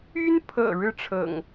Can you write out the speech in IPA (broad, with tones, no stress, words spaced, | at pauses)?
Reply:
y˦npʰɤ̰˨˩ ɻɻ̩˥˨ʈ͡ʂʰɤ̰˨˩ŋ